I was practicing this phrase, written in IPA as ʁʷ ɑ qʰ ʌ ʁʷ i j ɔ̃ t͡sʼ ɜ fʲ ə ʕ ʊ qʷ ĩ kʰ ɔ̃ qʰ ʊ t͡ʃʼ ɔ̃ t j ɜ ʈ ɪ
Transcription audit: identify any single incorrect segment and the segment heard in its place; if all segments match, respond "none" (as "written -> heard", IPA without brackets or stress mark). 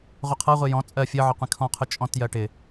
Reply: ɑ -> ʌ